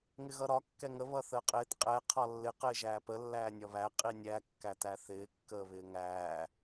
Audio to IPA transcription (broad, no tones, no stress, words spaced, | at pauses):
ŋɪɣʌɾɒ kːɛŋə βʌθəːqʼɪːt qʼɛ qʰɒlːɪ qɪːʒæːpə lːæːnʲɒβæ qʼinʲæ kːætæθɪː kːəːβɪːŋæː